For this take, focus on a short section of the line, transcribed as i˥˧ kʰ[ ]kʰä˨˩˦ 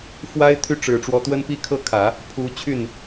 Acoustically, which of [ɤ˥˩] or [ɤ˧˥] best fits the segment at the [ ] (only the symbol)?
ɤ˥˩